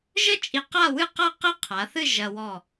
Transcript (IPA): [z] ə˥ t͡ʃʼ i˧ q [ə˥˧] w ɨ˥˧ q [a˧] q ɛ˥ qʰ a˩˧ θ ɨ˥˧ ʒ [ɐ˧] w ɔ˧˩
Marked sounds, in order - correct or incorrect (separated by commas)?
incorrect, incorrect, incorrect, correct